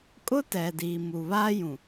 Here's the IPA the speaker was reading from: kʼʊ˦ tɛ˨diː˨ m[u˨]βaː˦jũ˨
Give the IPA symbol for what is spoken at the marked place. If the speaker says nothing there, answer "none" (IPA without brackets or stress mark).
u˨